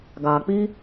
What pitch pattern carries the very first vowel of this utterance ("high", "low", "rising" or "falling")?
low